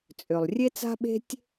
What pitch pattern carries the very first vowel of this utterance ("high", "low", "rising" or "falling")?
low